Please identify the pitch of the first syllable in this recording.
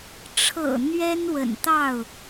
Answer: low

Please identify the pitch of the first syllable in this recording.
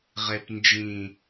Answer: low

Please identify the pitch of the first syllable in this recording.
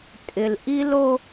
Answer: low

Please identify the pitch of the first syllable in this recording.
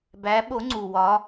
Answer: rising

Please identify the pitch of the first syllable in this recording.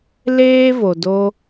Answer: high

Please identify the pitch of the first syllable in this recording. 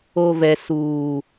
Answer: low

